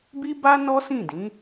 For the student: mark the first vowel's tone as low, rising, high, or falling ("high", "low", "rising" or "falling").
high